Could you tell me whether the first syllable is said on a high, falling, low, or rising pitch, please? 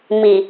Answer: low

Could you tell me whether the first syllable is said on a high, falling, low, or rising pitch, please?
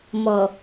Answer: low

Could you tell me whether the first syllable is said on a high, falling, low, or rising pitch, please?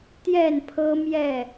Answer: falling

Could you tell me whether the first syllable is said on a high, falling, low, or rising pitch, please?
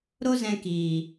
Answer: high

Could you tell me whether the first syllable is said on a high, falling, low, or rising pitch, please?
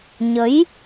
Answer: rising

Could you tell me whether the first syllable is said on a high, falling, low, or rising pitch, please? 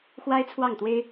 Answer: high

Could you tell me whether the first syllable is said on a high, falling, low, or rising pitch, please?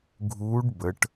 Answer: rising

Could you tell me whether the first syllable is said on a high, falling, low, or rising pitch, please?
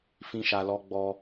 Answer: high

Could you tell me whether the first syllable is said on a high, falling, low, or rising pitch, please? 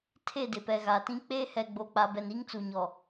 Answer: falling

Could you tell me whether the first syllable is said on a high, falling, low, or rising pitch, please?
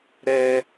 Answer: high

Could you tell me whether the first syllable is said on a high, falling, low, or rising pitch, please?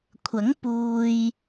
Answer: rising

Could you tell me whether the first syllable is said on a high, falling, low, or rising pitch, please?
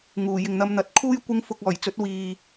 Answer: low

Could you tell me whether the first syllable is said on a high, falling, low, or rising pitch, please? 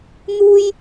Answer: high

